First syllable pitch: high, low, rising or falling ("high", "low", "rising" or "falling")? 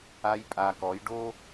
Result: high